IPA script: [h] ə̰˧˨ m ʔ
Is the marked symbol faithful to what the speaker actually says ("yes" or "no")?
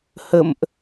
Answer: yes